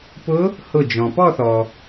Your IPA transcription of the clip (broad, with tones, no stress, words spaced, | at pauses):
pʊ˧˥ | hʊ˧˩ d͡ʒɔ̃˩pɔ˥˧θɔ˩